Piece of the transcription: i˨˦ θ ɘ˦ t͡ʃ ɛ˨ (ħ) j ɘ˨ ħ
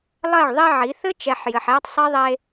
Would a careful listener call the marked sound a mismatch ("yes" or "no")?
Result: no